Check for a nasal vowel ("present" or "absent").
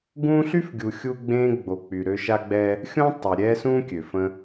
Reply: present